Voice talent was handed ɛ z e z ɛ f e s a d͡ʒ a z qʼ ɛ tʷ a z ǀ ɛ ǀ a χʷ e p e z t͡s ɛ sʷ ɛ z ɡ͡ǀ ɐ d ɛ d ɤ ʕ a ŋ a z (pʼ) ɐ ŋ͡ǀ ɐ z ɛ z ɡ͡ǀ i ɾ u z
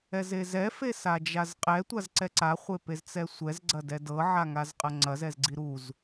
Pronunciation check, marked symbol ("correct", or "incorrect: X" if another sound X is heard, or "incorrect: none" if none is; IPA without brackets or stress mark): incorrect: qʼ